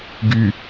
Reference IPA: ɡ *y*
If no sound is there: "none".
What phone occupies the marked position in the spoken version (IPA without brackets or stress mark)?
y